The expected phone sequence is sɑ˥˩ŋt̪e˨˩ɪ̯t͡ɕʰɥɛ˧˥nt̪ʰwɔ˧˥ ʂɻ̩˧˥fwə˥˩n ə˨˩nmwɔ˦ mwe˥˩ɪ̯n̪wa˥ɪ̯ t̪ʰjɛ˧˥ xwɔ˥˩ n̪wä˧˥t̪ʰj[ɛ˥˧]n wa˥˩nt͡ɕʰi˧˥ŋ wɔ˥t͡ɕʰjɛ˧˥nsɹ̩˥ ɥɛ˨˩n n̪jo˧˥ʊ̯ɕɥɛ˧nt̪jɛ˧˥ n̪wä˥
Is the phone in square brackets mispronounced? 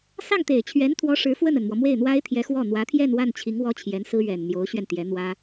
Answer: no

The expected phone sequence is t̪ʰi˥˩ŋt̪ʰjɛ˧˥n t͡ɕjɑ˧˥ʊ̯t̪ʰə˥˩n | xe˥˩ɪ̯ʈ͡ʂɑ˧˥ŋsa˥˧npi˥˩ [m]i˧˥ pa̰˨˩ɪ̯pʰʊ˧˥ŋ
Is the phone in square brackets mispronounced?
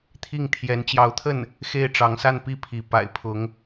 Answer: yes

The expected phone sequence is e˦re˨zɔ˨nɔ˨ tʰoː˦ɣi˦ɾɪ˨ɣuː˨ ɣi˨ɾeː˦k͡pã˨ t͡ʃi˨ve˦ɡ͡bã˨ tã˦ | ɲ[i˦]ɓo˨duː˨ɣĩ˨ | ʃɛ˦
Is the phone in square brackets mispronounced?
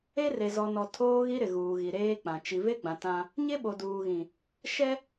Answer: yes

